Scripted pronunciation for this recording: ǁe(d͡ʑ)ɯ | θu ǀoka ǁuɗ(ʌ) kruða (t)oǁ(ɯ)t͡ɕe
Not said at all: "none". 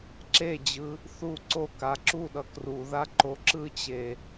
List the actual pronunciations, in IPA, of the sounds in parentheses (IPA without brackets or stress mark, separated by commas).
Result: d͡ʑ, ʌ, ǃ, ɯ